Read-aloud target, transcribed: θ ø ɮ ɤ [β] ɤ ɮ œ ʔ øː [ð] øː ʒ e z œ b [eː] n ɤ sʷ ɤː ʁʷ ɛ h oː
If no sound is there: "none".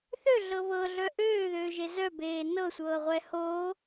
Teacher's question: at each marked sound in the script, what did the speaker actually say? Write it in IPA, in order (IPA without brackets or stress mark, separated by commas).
β, ð, eː